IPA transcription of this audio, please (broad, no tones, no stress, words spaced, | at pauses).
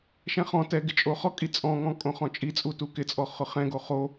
ʃɛ̃χɔ̃tɛ ɡɪt͡ʃʼoχɔkʼi t͡sʼɔ̃ŋɔ̃ kʼõχɔ̃t͡ʃʼit͡sʼu tukɪt͡sʼɔ χʊχɛ̃ɡo χo